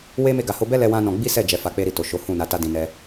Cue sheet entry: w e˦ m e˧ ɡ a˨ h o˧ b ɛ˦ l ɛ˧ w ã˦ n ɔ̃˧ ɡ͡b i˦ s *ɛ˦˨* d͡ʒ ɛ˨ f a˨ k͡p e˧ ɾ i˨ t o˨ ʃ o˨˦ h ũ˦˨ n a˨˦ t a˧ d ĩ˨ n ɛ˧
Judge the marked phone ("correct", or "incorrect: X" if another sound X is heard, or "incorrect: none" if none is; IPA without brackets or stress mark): correct